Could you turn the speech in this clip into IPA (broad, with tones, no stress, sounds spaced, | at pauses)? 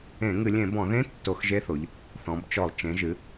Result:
ẽ˧˩˧ ŋ ɨ˧˩˧ lʲ ẽ˧˩˧ b ɔ̃˧˩˧ ð ẽ˧˥ tː o˧˩˧ x ʒ e˧˥ θ o˩˧ ʎ | θ ɔ̃˩˧ b t͡ʃ ɔ˧˩˧ lˠ t͡ʃ ẽ˩˧ ʒ ɨ˩˧